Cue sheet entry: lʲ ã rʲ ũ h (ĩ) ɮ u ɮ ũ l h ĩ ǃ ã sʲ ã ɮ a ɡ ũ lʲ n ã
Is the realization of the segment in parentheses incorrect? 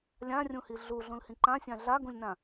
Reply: yes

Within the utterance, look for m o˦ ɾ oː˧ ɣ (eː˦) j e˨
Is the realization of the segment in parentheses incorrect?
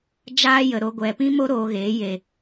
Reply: yes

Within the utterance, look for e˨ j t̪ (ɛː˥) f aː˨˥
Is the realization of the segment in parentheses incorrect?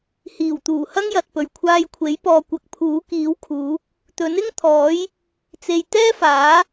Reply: no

